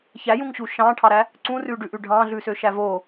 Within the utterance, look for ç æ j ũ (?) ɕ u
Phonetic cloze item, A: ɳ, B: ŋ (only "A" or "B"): B